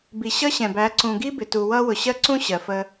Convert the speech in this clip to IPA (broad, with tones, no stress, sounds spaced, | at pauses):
b i˨ ɕ ʌ˦ ɕ ɛ̃˨ b æ˨˦ ǀ ũ˨ ɡ i˦ b ɪ˨ t u˨ w ʌ˦ w ʊ˨ ɕ ɜ˦ ǀ ũ˦ ɕ ɜ˨ f ə˧